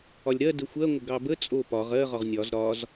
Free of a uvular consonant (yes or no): no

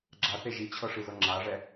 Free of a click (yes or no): no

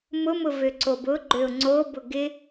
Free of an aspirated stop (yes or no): yes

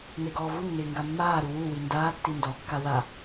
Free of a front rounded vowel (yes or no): yes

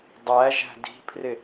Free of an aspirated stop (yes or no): no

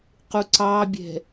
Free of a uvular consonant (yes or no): no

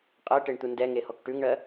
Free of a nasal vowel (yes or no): yes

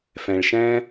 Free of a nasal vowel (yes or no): no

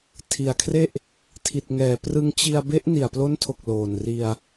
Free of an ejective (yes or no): yes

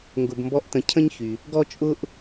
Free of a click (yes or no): yes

